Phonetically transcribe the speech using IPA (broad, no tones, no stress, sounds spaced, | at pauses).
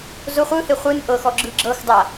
z o χʷ ɯ h e χʷ ɯ n ʔ ɤ x ɔ ɡ͡ǁ ɯ ɡ͡ǁ ɤ x dˤ a